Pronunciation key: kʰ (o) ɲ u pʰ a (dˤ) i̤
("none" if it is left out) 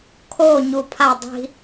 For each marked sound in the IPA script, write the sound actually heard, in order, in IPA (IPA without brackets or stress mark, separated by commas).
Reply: o, dˤ